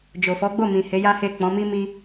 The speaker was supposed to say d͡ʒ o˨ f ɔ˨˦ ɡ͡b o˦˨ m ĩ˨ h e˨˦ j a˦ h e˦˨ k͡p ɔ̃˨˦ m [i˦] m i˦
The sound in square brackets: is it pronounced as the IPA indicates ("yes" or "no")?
yes